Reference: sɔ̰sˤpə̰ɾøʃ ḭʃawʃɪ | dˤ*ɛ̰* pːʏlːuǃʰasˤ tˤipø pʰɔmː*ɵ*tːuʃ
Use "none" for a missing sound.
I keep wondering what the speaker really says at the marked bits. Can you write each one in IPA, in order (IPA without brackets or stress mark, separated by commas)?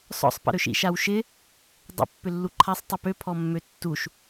ə̰, ø